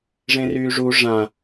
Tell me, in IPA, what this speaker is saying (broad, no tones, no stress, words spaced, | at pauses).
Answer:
ʐẽryːʐu ʐã